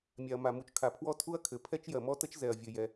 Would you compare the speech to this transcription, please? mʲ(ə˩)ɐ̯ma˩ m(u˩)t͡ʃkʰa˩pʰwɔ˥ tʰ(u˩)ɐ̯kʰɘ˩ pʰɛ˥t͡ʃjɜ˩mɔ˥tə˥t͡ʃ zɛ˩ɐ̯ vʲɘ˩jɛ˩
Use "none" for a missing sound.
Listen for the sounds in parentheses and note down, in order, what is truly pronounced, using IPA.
a˩, u˩, u˥

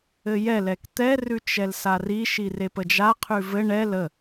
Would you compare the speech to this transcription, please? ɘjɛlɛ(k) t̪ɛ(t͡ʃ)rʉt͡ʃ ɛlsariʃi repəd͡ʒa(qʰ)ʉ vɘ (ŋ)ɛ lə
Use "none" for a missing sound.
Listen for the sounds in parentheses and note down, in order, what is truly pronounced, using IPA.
k, none, qʰ, ɳ

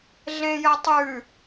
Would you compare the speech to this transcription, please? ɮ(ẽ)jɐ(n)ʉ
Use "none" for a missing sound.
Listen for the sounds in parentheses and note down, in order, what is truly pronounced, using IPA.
ẽ, tˤ

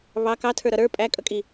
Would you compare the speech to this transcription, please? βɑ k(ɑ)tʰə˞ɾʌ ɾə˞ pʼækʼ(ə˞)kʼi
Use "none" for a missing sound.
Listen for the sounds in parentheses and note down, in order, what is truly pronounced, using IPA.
ɑ, ʌ

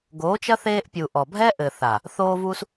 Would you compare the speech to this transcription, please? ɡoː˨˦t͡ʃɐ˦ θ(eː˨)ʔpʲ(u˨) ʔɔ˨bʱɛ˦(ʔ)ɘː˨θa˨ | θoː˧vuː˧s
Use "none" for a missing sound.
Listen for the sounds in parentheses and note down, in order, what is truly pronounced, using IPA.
eː˧, u˨, ʔ

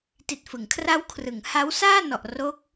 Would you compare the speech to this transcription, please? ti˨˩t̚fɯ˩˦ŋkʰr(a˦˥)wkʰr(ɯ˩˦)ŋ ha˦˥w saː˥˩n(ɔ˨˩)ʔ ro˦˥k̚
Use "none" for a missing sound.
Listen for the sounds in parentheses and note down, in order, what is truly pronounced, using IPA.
a˦˥, ɯ˩˦, ɔ˨˩

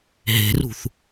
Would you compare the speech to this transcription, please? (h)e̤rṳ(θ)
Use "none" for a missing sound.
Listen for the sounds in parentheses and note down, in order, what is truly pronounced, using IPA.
ɦ, θ

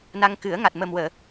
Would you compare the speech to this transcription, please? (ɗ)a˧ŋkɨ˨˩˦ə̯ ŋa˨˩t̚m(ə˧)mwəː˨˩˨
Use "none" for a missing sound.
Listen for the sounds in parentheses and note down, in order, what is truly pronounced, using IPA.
n, ə˨˩

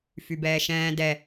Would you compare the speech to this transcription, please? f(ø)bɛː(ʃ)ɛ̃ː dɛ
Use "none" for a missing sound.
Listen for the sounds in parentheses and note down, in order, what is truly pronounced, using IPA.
y, ʃ

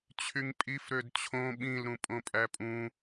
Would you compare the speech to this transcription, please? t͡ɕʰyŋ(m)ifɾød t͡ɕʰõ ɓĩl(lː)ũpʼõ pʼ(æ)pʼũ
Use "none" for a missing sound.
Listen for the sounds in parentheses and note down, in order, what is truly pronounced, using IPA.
pʼ, ɾ, æ

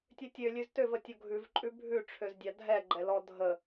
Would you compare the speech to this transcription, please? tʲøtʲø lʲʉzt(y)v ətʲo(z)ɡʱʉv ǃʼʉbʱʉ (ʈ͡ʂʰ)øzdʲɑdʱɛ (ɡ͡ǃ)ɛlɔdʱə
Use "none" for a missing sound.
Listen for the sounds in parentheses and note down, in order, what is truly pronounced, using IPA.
ø, none, ʈ͡ʂʰ, ɡ͡ǃ

